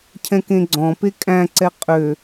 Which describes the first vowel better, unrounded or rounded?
unrounded